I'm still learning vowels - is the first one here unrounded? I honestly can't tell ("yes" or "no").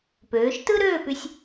no